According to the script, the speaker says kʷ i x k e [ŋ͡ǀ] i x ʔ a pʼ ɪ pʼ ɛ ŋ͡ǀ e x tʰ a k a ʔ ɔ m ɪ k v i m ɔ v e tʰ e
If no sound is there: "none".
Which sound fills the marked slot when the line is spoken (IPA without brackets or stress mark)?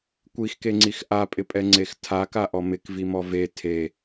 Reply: ŋ͡ǀ